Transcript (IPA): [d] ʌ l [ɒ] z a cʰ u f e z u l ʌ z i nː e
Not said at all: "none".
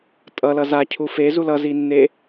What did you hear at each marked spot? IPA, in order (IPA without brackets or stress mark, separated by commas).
tʼ, ʌ